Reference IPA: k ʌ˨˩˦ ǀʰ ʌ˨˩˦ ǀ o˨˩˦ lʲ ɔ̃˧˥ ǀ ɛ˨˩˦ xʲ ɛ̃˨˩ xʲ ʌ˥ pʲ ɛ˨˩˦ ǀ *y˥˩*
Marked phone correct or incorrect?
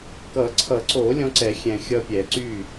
correct